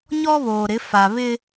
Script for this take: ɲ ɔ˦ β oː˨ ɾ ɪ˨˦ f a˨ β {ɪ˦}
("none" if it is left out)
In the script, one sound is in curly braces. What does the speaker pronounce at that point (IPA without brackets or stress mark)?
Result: ɪ˦